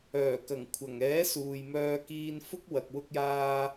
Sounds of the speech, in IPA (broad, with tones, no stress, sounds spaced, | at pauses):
œː˨˩ k ɐ˨˩ ŋ kʷʰ ɐ˨˩ ŋ ɛː˨˥ s uː˨ j m œː˧ k iː˧ n f ʊ˥ k̚ w ɐ˨ k̚ w ʊ˧ k̚ j aː˧